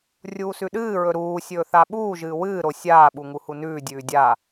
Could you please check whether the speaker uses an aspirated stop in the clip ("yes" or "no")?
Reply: no